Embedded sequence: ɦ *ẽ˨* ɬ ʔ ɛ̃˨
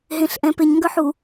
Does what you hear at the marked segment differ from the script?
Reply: no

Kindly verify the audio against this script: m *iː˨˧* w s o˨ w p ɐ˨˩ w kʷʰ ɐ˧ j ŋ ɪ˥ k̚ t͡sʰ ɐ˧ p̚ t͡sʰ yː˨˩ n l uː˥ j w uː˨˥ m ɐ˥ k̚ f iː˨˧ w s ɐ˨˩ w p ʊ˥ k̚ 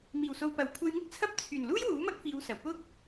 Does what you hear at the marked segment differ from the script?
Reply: yes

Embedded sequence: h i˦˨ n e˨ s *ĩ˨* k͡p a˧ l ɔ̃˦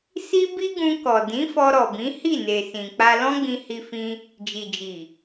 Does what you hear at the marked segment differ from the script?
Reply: no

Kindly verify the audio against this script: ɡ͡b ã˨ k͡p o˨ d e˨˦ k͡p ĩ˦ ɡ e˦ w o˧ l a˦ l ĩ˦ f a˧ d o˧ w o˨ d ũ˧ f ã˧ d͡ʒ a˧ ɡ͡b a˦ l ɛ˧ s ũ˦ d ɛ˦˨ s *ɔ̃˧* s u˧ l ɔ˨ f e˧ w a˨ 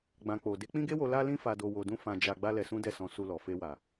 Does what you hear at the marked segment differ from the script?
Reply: no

